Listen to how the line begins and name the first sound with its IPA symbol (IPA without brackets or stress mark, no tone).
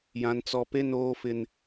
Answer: j